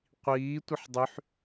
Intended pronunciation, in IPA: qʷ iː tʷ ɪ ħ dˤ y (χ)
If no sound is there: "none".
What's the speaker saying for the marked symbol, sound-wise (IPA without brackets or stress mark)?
ħ